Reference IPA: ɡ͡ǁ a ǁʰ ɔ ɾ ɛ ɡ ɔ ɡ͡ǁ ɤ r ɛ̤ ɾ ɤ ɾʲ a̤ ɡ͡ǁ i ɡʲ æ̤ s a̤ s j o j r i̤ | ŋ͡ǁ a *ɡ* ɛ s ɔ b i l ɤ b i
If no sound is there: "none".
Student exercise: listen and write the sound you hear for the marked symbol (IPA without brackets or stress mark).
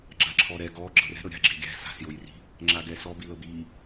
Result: ɡ